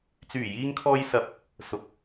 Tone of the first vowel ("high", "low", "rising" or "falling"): low